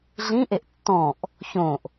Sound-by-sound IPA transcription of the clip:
ɮĩʔeʔ tːɔ̃ʔ | çõʔ

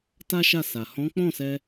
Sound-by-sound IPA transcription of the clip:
ta˦ʃa˦˨sa˨ hɔ̃˨˦k͡pɔ̃˦˨sɛ˧

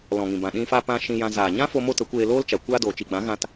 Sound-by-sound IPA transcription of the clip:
lɔ̃˨ŋĩ˨bã˨ ɗĩ˧fa˧pã˧ ʃĩ˧jã˧ zaː˨ɲã˦fo˧ mo˦tə˨˦ kʷeː˧loː˦lt͡ʃa˨ kʷaː˧doː˨ t͡ʃi˨ɡ͡bã˨˦ɣã˧t

